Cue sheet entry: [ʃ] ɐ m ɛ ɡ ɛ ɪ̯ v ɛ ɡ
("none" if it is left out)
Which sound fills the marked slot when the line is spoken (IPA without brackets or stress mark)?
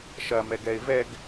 ʃ